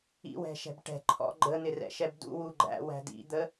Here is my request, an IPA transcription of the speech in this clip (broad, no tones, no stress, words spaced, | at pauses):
ḭwɛ̤ʃɛ̤b ʈɛ̤ ǃʰɔ̰ ɡ͡ǃən̪ɪrɛ̰ʃɛb dṵwu ɡ͡ǃæ̰wæ̤ dḭd̪ə